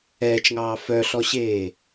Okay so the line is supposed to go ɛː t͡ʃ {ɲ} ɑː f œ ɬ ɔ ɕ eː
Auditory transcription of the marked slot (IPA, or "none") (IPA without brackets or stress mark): ŋ